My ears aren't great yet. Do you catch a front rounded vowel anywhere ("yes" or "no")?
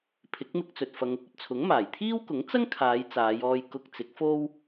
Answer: no